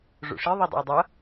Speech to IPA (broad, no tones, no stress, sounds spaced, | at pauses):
ʐ o̰ ʂ i ðˤ i dˤ o̰ y̯ dˤ ʌ